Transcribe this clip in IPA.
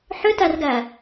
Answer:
ħ ʏ t æ r ɡ æː

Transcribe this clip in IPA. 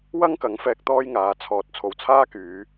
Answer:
w ɐ˥ ŋ k ɐ˨˥ ŋ f ɛː˧ k̚ t̪ ɔː˥ j ŋ aː˨˧ t͡sʰ ɔː˨ t̚ t͡sʰ o˨ w t͡sʰ aː˥ k yː˨˧

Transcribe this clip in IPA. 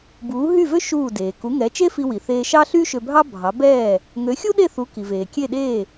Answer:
b uː˩˥ ɦ y˥˩ v ø˥ ʃ uː˥˩ d eː˩ k u˩˥ ŋ ɛ˩˥ t͡ʃ e˥ f i˧ w i˩ θ eː˧ ʃ ɑ˥ ɬ y˥ ʃ ø˧ bʱ ɑ˥ bʱ ɑ˩˥ b ɛː˥˩ | ŋ ø˩˥ xʲ u˥ ɗ e˥˩ θ u˩˥ k i˩ v eː˩ kʲ e˥˩ ɗ eː˥˩

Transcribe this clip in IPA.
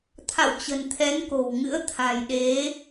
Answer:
t̪ʰ a̰˧˨ w t͡ɕ ə̤˨˩ n t̪ʰ ɛ˨˦ n k o̤˨˩ w ŋ ɨ̰˧˥ ə̯ t̪ʰ a̤˨˩ j ɗ e˨˦

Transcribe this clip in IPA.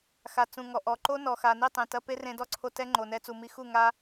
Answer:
x a˨ t͡s ũ˨ ŋ ɔ˨ ʔ ɔ˨ ǃ o˦ n ɔ˨ x a˨ n i˦˨ tˤ ẽ˨ t ɐ˧ p e˦ r ẽ˧ d ɔ˦ ǀʰ o˧ t ɛ˧ ŋ͡ǃ o˨ n ɛ˧ t͡s u˨ m i˧ x u˦˨ ŋ a˧

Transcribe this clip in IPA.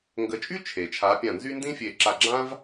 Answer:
ŋ ɡ ə˨˦ t͡ʃʼ y˥ t͡ʃʰ e˩ t͡ʃʰ a˨˦ pʲ ã˧˩ n z y˥ n d ĩ˥ fʲ e˧˩ ǁ a˧˩ ɡ͡ǁ ã˥ v

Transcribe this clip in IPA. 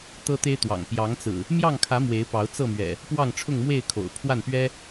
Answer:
t̪ ɤ˦ t̪ e˦ ɪ̯ t̪ w ɑ̰˨˩ ŋ p j ɑ˨˦ ŋ t͡s ɹ̩˨˩ | m j ɑ˥˨ ŋ kʰ ä˨˦ m w e˨˦ ɪ̯ p ɑ˨˦ ʊ̯ t͡s ɤ˥˨ m ɥ ɛ̰˨˩ | p w ɑ˥˨ ŋ ʈ͡ʂʰ ʊ˥˨ ŋ m w e˥˨ ɪ̯ kʰ o̰˨˩ ʊ̯ pʰ w a˥˨ n p ɥ ɛ˦

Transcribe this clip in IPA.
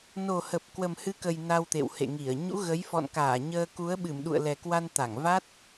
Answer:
n o˨˩ h ə˨˩ p̚ k w ə˨˩ m h ɨ˨˦ k ə˨˩ j n a˧ w t̪ ḛ˧˨ w h ḛ˧˨ ŋ i˧˩ ə̯ ɲ ṵ˧˥ ɣ ə˨˦ j f ɔ̰˧˨ n k aː˧˩ ɲ əː˧ k u˨˦ ə̯ ɓ ɨ˧˩ m ɗ ṵ˧˨ ə̯ l ɛ˨˩ k w a˧ n t̪ a˧˩ ŋ v a˦˥ t̚

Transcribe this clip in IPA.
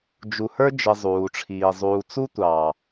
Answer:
d͡ʒ u˨ h ə˞˦ d͡ʒ ɪ˨ zˤ uː˨ ʈ͡ʂʰ iː˨ zˤ uː˨ t͡s u˦ tʷ ɑː˨

